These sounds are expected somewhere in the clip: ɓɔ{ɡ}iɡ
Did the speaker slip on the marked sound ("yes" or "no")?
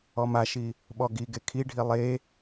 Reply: no